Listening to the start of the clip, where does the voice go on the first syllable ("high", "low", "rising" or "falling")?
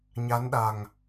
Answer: rising